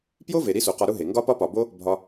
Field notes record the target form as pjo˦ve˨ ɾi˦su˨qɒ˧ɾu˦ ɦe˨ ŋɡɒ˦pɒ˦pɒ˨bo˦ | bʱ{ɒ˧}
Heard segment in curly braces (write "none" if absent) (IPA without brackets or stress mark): ɒ˧